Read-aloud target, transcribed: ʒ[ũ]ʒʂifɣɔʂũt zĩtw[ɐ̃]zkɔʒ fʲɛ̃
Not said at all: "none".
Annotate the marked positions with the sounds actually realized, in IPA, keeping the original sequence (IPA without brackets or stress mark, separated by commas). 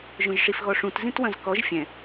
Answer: õ, ɐ̃